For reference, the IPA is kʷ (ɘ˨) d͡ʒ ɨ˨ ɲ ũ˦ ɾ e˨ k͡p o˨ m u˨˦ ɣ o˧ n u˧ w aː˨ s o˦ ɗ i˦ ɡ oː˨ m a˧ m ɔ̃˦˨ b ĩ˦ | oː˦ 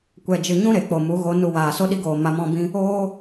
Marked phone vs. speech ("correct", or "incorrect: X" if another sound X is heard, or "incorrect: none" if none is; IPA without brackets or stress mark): incorrect: ɛ˨